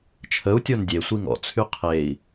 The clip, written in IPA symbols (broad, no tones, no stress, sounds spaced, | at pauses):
t͡ʃʰ ə u̯ tʲ o n dʲ e sʷ i ŋ ɔ̰ t͡sʰ y qʰ e i̯